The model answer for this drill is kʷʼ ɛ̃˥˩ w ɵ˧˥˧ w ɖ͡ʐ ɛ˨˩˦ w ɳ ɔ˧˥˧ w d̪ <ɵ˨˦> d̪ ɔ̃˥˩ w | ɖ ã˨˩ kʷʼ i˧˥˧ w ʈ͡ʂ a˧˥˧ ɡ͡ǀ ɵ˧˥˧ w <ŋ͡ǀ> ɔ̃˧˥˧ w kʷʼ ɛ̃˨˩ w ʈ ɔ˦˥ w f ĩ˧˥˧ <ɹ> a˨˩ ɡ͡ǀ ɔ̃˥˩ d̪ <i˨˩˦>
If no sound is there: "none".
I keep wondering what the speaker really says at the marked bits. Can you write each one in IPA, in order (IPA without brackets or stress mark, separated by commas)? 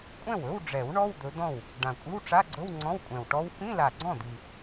ɵ˨˦, ŋ͡ǀ, l, i˨˩